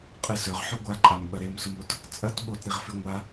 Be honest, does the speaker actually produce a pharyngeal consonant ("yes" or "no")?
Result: yes